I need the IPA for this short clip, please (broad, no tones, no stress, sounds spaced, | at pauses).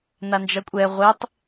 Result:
n a n d͡ʒ ʌ kʷʼ ɛ ʁʷ e tˤ